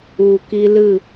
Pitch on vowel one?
low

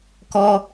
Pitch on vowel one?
high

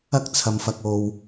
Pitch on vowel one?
high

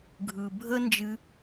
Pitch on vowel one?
low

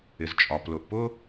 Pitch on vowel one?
low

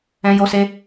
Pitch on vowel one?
high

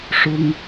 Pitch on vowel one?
high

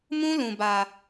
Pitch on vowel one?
high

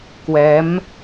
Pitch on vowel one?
rising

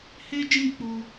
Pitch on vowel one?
high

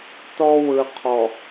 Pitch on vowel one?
high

